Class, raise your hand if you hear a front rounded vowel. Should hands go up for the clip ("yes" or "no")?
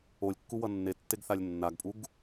no